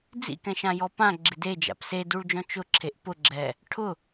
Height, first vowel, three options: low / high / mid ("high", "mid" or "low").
high